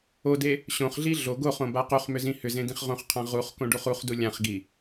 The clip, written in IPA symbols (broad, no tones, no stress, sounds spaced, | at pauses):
o d e | ɕ õ χ ɮ i ɮ o ɡ o χ õ b a q u χ m ʏ z ĩ h ʏ z ẽ d ĩ χ ʁ õ χ qʰ ã ʁ u χ k õ ɖ u χ u χ d u lʲ ã χ ɡ i